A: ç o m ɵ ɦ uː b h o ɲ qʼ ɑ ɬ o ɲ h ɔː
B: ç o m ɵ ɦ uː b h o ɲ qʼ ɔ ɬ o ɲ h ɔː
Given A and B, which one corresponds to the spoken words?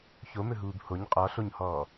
B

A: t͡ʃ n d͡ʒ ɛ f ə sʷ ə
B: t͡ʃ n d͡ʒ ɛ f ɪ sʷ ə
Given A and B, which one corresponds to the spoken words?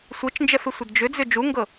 B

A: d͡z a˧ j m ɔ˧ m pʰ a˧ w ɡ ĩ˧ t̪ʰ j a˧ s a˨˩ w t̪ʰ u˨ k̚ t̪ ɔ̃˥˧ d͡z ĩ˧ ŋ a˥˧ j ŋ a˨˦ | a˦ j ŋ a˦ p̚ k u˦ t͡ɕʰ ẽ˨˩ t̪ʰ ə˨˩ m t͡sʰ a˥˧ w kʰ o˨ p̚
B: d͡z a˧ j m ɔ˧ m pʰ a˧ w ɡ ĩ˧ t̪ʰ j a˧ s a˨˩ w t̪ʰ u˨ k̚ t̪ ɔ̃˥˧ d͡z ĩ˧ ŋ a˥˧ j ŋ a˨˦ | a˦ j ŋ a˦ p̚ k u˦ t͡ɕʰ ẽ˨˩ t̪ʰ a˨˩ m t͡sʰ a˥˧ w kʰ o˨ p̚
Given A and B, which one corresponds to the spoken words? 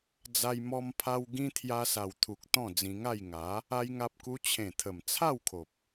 A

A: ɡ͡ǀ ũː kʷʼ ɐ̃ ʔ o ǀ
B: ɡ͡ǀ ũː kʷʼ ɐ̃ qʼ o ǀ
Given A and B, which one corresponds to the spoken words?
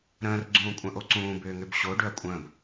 A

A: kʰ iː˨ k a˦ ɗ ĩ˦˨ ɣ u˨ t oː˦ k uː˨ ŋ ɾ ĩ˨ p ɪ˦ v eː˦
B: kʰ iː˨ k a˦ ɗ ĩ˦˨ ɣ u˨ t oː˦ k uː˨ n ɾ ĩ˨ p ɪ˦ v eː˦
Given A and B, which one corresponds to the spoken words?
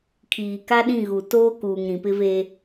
A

